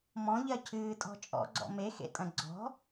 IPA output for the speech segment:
m ɔ̃ ʎ ɜ cʰ ɨː tʼ ɔ̤ t͡ʃʼ ɔ̰ ɡ͡ǀ ɔ̰ m e x ḛ tʼ ɐ̃ ɡ͡ǀ ɔ̤

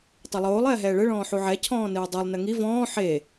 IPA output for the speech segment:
tˤ ɘ lˠ oː lˠ ɛː ɦ ɛː ɭ ɘ ɭ ɔ̃ː ħ u ʕ ɛ cʰ ɔ̃ː n ɨː dˤ ɛ lˠ n ɘ ŋ i v ɔ̃ː ħ e

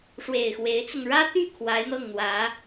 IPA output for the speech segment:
ʂ w e˨˩ ɪ̯ x w e˧˥ ɪ̯ t͡s ʊ˧ ŋ ɻ ä˥ t̪ y˥˩ kʰ w a˧˥ ɪ̯ n̪ ɤ˥˩ ŋ n̪ w ä˧˥

